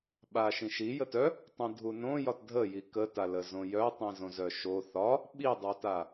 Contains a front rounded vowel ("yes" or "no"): yes